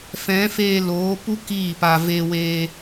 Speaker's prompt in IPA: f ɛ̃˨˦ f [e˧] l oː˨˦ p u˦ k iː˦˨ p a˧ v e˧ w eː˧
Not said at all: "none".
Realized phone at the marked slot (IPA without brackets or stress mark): eː˧